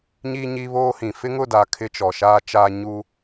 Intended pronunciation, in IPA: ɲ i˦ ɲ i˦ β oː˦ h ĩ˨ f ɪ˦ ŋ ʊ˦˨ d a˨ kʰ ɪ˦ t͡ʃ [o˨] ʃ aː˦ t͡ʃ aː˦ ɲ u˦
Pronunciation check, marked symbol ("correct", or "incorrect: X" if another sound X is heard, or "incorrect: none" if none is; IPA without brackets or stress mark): incorrect: ɔ˨